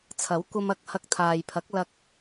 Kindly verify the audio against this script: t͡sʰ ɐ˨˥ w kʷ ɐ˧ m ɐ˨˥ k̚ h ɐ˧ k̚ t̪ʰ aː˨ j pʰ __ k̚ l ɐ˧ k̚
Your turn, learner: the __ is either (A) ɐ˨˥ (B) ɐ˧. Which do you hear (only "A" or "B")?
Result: A